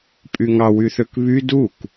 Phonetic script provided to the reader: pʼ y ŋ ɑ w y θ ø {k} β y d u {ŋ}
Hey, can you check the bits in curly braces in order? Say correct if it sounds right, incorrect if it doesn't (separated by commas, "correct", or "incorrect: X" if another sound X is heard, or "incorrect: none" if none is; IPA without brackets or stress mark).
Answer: correct, incorrect: k